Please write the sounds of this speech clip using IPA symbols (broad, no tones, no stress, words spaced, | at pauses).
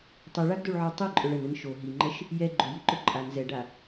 tˤiɭaɡdoɭʕo tˤiǃʼʊɭ ənən ʃo ɦiŋ͡ǃəʃ | jɛ ɡ͡ǃʊjiǃʊ ǃʼan zɛɖa